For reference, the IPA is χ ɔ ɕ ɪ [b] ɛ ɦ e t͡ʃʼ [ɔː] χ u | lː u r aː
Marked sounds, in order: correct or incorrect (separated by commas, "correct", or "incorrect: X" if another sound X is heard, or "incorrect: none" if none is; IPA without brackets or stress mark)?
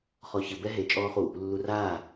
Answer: correct, correct